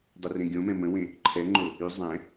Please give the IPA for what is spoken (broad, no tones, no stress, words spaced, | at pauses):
dˤurẽɡʲõmɛ̃ mə̃wẽ | ǃʰɛŋ͡ǃo | y zˤɛ̃